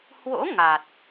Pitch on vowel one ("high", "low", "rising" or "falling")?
rising